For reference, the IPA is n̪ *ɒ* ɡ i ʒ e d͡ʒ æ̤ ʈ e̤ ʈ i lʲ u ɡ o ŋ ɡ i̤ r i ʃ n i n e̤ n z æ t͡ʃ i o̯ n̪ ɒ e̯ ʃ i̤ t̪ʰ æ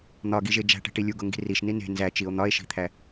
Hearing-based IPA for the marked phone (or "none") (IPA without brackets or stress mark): ɒ